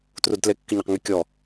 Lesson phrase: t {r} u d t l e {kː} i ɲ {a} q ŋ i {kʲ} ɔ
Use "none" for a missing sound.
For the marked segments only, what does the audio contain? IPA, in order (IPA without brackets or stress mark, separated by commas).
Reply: r, kː, a, kʲ